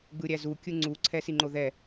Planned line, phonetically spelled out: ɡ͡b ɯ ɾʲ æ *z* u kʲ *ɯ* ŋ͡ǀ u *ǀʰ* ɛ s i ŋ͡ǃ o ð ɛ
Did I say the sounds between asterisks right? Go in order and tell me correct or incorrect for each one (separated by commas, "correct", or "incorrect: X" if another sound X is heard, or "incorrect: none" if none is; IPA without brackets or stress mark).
correct, correct, correct